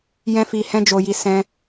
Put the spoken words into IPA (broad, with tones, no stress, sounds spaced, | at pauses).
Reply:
j ɛ̃˧ f i˧ h ɛ̃˦ d͡ʒ o˧ j i˧ s ɛ̃˦